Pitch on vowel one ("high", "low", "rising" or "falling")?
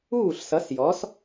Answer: falling